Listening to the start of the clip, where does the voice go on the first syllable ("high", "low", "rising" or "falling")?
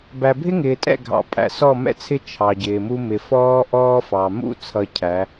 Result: low